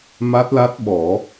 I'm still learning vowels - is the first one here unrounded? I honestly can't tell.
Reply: yes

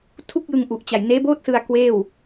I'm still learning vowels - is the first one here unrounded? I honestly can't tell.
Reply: no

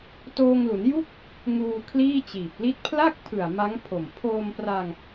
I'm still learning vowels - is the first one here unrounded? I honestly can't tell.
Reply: no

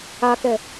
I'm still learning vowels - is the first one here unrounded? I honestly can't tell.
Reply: yes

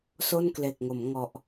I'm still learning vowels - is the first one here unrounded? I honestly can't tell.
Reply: no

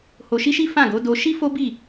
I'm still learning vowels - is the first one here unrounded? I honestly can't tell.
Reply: no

